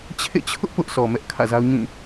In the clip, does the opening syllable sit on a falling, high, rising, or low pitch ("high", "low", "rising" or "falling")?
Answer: falling